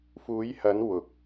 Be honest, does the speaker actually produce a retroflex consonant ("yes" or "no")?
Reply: no